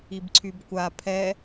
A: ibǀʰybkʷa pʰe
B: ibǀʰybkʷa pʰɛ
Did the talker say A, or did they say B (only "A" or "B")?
B